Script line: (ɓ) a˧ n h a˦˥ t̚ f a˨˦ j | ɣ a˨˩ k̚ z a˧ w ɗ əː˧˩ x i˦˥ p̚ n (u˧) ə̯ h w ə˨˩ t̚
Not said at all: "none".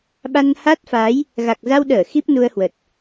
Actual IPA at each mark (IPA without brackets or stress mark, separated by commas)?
ɓ, u˧